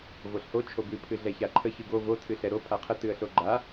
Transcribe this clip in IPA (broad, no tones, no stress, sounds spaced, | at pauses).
v o ɬ h o t͡ʃʰ o b ɨ pʰ ɨ ɮ ɛ ç a ǃʰ ə ç ɨ ɡ o v o tʰ ɨ ɬ ɛ ɾ o pʰ a qʰ ə t ɨ ə̯ ɬ o ɡ͡ǃ a